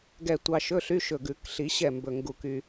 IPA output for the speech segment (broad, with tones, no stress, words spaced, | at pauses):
ɡɛ˧˩ tʷɑ˧ʃɵ˧˥˧ɬy˧˥˧ʃɵ˧˩ ɡʉ˨˩˦kɬi˨˩˦ɕɛ˧˩ mbɵ˧˩ŋɡu˧˩ky˧